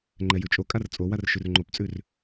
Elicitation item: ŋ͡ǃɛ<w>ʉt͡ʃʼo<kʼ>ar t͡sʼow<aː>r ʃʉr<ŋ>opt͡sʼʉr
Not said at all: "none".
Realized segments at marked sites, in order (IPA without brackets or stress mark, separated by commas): j, kʼ, a, ŋ͡ǃ